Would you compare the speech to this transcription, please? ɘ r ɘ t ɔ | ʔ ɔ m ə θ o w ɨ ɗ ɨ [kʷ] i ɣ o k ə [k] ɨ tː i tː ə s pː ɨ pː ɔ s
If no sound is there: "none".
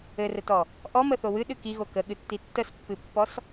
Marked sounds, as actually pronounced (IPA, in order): k, ɠ

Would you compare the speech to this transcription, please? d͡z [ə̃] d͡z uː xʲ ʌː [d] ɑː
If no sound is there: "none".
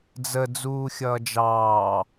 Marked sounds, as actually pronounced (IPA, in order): ə, d͡ʒ

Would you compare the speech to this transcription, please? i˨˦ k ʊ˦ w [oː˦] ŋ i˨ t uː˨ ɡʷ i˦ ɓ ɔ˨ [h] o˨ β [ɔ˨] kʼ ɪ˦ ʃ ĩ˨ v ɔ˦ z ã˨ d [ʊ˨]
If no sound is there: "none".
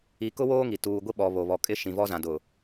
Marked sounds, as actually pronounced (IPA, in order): oː˦, β, ɔ˨, ʊ˨

